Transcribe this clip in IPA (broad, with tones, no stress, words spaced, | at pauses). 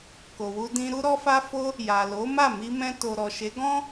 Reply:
ko˨wu˧dĩ˧ ɾu˧ɾɔ˧fa˧fo˧ | ja˨lo˨˦ma˦˨ mi˧mɛ̃˧ to˨ɾɔ˨ʃe˨˦ ɡɔ̃˦